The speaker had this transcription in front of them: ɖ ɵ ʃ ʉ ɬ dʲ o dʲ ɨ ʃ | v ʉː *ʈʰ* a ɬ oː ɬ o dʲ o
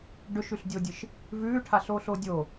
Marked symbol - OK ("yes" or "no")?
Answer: yes